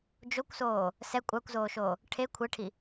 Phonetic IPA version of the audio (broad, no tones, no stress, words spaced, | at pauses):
d͡ʒokʷsoː | sɛ kʷʼakʷzoːʃoː | ʈʰe kʷʰɪʈʰi